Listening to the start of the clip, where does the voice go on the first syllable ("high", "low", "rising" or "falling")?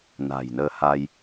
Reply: low